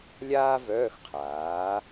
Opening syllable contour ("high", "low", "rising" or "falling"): high